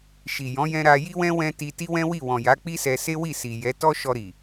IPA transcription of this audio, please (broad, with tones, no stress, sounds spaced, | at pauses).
ʃ i˨ j ɔ̃˨˦ j ɛ̃˧ ɾ a˧ j i˦ w ɛ̃˦ w ɛ̃˦ t i˧ t i˦ w ɛ̃˦ w i˦˨ w ɔ̃˨ j a˨˦ k͡p i˦ s ɛ˧ s e˦ w i˦˨ s i˨ j ɛ˨˦ t ɔ˦ ʃ ɔ˧ ɾ i˨